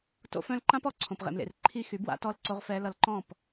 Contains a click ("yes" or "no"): yes